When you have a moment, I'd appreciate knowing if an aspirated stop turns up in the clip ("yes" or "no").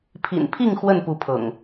yes